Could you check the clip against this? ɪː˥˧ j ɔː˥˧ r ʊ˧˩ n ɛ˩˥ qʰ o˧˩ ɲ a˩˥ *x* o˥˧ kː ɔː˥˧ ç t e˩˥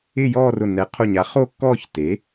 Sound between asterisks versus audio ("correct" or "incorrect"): incorrect